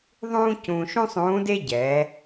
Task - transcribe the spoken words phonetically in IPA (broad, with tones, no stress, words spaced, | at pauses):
ðˤũː˥cũː˧ʃũ˥ sˤũː˧˥de˥ɟɛ˩˧